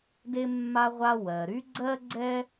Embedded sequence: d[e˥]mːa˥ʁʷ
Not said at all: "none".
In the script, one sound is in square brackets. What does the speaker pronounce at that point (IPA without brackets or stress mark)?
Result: e˥